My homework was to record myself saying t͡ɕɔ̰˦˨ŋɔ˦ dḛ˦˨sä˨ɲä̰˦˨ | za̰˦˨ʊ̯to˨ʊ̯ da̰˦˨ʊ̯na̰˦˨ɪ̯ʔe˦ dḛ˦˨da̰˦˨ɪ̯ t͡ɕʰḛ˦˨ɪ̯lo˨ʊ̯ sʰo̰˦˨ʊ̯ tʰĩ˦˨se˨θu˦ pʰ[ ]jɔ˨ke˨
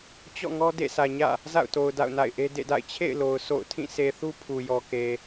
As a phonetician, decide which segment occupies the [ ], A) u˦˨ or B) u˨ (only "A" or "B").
B